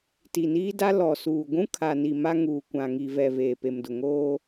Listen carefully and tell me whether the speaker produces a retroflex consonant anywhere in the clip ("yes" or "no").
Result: no